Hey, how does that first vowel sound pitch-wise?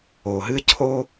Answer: low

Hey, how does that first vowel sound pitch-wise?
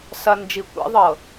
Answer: low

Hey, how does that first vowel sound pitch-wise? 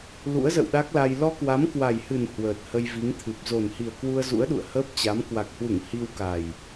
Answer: rising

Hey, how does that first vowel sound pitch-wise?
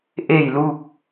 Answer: falling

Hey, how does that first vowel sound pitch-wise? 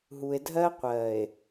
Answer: low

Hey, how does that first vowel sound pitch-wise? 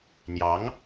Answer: rising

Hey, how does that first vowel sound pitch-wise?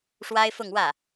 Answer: high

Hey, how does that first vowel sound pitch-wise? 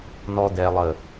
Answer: high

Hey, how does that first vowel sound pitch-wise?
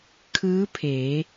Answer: rising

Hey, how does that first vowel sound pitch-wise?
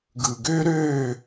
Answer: low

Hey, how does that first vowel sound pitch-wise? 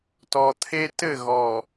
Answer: low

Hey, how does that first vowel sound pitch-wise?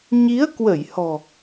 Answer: rising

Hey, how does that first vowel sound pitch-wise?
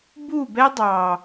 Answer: falling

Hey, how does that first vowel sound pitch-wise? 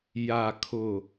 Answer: low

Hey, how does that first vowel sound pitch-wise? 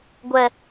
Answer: high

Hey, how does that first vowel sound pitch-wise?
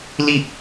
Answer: falling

